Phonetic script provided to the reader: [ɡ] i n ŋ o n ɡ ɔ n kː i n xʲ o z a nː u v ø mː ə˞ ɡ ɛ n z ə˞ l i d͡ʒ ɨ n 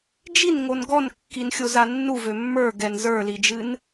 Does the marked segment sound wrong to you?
yes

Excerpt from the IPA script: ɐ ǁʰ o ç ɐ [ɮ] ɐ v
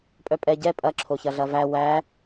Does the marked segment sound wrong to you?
no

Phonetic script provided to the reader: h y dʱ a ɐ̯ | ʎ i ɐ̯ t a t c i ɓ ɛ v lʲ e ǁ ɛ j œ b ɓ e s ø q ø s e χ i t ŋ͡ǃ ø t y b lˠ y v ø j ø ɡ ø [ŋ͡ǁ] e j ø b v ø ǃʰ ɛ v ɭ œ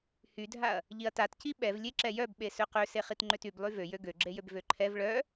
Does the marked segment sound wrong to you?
yes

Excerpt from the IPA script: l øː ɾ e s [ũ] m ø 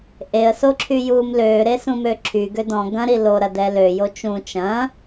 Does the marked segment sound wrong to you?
no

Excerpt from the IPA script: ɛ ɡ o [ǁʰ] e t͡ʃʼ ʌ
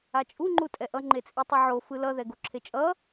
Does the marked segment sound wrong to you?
no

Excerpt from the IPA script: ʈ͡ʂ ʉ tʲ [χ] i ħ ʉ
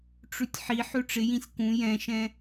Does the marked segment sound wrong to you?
yes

